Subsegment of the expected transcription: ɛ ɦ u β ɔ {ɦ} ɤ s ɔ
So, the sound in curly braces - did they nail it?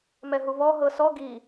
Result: yes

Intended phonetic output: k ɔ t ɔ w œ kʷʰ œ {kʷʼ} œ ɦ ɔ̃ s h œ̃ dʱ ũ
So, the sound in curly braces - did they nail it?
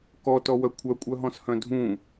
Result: yes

